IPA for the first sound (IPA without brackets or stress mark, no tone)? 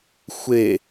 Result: xʷ